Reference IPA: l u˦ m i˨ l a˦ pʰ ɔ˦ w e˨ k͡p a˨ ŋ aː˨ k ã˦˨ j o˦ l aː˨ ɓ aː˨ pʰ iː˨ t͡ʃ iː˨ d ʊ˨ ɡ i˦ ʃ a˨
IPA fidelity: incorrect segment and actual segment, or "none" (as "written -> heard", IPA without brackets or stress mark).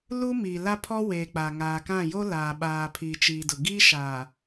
none